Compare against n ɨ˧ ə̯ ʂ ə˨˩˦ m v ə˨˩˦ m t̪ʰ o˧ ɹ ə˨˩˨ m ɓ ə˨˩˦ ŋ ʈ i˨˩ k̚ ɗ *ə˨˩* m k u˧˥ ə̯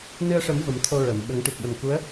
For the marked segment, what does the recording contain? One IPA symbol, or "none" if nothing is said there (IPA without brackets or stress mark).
ə˨˩